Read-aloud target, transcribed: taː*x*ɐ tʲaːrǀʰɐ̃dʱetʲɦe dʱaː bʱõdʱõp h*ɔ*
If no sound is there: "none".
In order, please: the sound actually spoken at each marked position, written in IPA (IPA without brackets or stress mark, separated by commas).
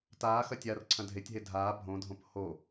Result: x, o